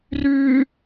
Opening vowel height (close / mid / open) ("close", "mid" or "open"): close